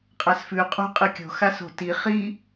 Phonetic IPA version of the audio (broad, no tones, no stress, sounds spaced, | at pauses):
qʼ a s f ʉ qʼ ṳ qʼ ɨ kʲ o̤ x a s o̤ t i χ i